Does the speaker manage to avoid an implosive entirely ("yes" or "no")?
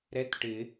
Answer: yes